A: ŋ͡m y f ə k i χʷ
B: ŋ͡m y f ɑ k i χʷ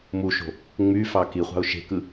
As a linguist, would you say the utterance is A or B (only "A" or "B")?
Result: B